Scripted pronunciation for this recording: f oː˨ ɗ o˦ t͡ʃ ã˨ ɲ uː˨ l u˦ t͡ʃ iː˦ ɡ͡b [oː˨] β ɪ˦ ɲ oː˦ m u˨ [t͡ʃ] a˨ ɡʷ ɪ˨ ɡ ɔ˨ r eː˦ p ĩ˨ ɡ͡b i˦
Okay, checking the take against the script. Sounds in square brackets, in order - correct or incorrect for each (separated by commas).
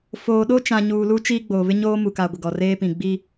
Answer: correct, incorrect